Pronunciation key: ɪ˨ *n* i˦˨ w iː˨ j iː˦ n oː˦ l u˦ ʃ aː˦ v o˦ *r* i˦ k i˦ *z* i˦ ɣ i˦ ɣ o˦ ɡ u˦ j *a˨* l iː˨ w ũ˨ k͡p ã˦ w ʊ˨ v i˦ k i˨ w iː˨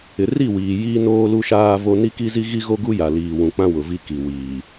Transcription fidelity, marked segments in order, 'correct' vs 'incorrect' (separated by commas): incorrect, incorrect, correct, correct